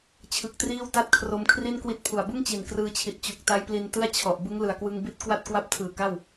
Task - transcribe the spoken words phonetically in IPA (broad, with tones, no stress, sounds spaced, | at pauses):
t͡ɕʰ ɯ˦˥ k̚ t r iː˥˩ w t a˥˩ t̚ kʰ r o˦˥ m kʰ r i˥˩ n k w i˦˥ t̚ pʰ u˨˩ a̯ b ɯ˥˩ ŋ t͡ɕ i˨˩ n k r ɯː˧ t͡ɕʰ i˨˩ t̚ t͡ɕ u˨˩ k̚ t a˦˥ j p l i˧ n t ɯ˥˩ a̯ t͡ɕʰ ɔ˨˩ ʔ b ɯ˦˥ ŋ l ɯ˨˩ a̯ k w ɯ˧ ŋ b i˦˥ t̚ k w a˥˩ t̚ k w a˥˩ p̚ tʰ ɯː˨˩ k a˥˩ w